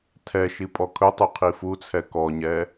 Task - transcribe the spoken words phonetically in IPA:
tʰ ɛ ʃ i pʼ ɔ kʰ ɵ tˤ u qʰ i f u t͡sʰ ɛ k ɔ ɲ ɛ

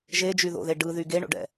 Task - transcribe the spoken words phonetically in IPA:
ʒ e d͡ʒ y ð o̰ ð e ɖ ɯ ð y ɡ e ɳ o̰ ɖ ɛ̰

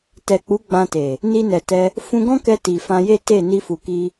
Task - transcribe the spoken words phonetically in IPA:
t ɛ˨ k͡p u˨˦ ɡ͡b ã˧ t e˨ | n i˧ n ɛ˨ t ɛ˧ | f ũ˧ ɡ ɔ̃˦ k ɛ˧ t i˨ f ã˧ j e˦ t e˦˨ n i˧ f u˨ k i˧

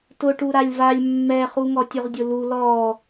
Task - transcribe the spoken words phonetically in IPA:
t ʊ ʈ u ɾ a lʲ v a lʲ mː ɛ χ u ŋ ɔ tʲ ʊ ʁ dʲ ʊ l u l ɔ

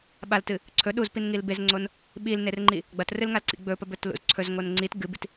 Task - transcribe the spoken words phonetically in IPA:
ɓ a l t ɨ | ǀʰ ɵ ɗ u z p i n ŋ i l b e z ŋ͡ǀ o n | ɓ i l n e r ŋ͡ǃ i | ɡ͡b ɐ t r ɨ l ŋ a l ǀ ḭ ɡ͡b ɵ p ɐ b ɵ t l ṵ z ǀʰ ɵ z ŋ o n ŋ͡ǀ i t ɡ ɨ b i t

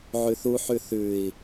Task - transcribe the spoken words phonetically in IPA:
ʕ ʉ θ u ħ ʉ θ ʉ i̯

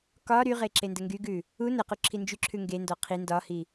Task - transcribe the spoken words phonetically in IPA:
k ɒ ɾ y ʁ e ǁ e n d ə ŋ ɡ y ɡ ʉ | u n ə q u ǁʰ i n d͡ʒ y ǁʰ ʉ ŋ ɡ e n d ɔ qʰ i n d ɒ h i

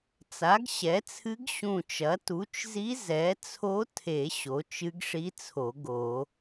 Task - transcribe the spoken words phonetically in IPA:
t͡s a˩˥ ɡ ɕ ɛ˩˥ t͡sʰ ɨ˧˥ ɡ ɕ ũ˧˩ t͡ʃ ɐ˩˥ t u˩˥ t͡ʃ z i˧˥ z ɛ˩˥ t͡sʰ o˧˥ tʰ e˨˩˦ ɕ o˩˥ t͡ʃ ɨ˧˥ ɡ ʂ i˧˥ t͡sʰ o˨˩˦ ɡ o˨˩˦

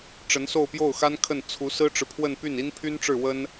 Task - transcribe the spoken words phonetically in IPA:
ʈ͡ʂ ə˧˥ n s o˥˧ ʊ̯ p j o˥˩ ʊ̯ x a˥ n kʰ ə˥˩ n t͡sʰ u˧˥ s ɹ̩˥ ʈ͡ʂ ɻ̩˨ pʰ w ə˥˧ n p y˥˩ n i˥ n pʰ y˥ n ʈ͡ʂ ɻ̩˥˩ w ə˥ n

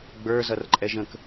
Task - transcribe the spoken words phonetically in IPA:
ɡ͡b ə˞ z ʌ r ǃʼ ɛ ʒ ə̃ k

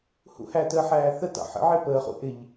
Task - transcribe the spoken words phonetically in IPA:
h ṵ h æ t əː ħ æː θ ə t ɑ̰ ħ ə̰ ʕ ɪ p əː χ ṵ ʔ ɪ ʎ

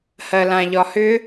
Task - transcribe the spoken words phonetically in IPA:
h ɜ l ã ʎ ɒ h ʏ

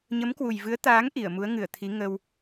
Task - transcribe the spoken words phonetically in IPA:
ɲ ə˨˦ m k w u˨˩ j v ɨ˨˦ ə̯ t̪ aː˨˦ ŋ ʔ i˧˩ ə̯ m u˨˦ ə̯ ŋ ɨ˧˩ ə̯ t̪ʰ i˨˦ ŋ ə˧ w

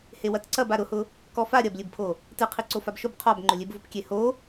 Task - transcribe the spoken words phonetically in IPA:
h e w ɐ t ǀ ɐ b a ɾ ʊ h ʊ | k ɔ f a ɾʲ ɐ b lʲ ɨ b pʰ o | t ɨ qʰ i ǀ o f a b ʃ ʊ b qʰ ɔ b ŋ͡ǃ ʊ lʲ e b v ʊ p kʲ e h o

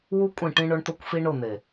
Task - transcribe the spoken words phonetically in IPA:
w u˦ kʷʼ ĩ˦˨ ʈ ĩ˦ ɳ ʊ˦ ɳ t̪ ʊ˦ kʷ f i˦ ɳ ʊ˦˨ n̪ e˨

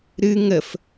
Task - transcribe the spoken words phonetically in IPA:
ɾ ɨ ŋ ə f

